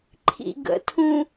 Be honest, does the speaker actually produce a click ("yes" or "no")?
yes